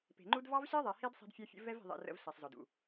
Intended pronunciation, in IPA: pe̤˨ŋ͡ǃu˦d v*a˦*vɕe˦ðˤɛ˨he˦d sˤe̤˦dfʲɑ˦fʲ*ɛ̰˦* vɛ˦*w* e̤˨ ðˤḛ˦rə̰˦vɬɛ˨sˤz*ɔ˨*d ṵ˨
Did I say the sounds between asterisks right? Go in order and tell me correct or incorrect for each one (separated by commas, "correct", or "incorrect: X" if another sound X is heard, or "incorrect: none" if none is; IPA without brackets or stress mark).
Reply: incorrect: ɑ˦, incorrect: ə̰˦, incorrect: v, correct